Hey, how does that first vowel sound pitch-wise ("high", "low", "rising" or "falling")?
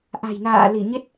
low